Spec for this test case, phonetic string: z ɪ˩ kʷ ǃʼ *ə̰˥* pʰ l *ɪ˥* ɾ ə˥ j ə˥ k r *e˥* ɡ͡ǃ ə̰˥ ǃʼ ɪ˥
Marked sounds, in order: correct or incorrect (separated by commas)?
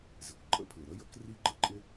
correct, incorrect, incorrect